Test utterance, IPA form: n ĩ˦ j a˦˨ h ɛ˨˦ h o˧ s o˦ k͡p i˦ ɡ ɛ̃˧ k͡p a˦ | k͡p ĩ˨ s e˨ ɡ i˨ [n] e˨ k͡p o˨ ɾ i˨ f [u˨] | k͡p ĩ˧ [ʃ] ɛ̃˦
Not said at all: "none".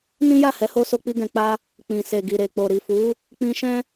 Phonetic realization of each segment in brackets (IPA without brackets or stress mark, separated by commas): ɾ, u˨˦, ʃ